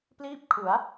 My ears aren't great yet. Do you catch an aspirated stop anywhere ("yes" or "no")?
yes